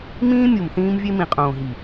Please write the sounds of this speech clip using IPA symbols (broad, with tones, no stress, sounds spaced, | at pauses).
m ĩː˦ mʲ u˨ m θ ĩː˦ m vʲ e˦ m ĩ˨ qʼ õː˨ ɦ i˨